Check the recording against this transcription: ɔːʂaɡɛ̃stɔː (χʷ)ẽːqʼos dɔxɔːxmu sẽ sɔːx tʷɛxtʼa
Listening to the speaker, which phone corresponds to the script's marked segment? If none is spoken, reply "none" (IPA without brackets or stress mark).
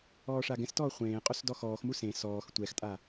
χʷ